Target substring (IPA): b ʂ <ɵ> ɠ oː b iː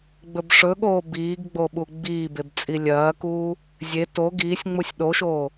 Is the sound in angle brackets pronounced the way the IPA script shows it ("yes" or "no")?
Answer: yes